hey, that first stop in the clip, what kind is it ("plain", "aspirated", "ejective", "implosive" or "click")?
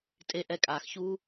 ejective